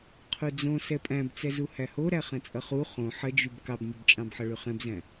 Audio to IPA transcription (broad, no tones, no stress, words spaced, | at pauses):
qʰud͡zõ sɛpʼæ̃bt͡sɛzu hæhoɾæ χɛ̃t͡sʼʌχu χõ ħəd͡ʒyb kɑbnʲʌbt͡ʃʼɑ̃bħʌ ɭyχɛ̃bzæ̃